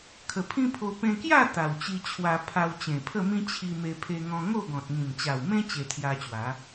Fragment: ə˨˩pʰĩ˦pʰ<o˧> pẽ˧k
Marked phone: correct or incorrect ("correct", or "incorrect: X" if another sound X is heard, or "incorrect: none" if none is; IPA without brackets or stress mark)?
correct